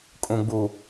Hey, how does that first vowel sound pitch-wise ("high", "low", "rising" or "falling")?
low